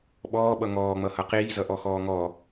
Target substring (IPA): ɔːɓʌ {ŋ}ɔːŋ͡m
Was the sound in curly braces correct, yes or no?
yes